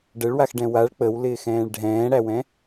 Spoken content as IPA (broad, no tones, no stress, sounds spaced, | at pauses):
ɖ ə ɭ w a x ɖ ɛ̃ w a ɭ k͡p ə w l ɪː x ɛ̃ː ɭ ɖʱ ɛ̃ː ɽ æ w ɛ̃